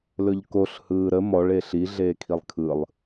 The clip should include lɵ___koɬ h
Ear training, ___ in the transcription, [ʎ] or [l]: ʎ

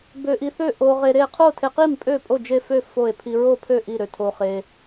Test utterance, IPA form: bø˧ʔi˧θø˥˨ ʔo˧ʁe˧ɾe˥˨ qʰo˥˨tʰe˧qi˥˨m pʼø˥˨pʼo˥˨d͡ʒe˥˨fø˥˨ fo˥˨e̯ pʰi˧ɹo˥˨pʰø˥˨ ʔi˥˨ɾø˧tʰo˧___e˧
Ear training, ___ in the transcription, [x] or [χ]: χ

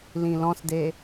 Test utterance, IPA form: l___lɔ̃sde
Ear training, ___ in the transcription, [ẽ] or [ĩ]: ĩ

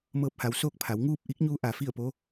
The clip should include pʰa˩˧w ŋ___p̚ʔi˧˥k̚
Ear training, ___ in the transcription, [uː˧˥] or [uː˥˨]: uː˥˨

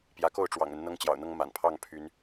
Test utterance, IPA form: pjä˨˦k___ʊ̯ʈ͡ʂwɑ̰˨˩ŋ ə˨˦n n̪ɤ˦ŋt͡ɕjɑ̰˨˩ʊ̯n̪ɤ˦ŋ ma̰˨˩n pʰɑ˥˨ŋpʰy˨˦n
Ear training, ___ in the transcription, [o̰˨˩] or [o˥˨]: o˥˨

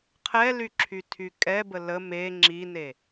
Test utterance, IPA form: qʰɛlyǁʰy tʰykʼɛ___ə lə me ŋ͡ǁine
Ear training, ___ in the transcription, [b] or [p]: b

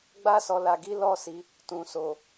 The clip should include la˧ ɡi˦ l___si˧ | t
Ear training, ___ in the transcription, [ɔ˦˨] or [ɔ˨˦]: ɔ˦˨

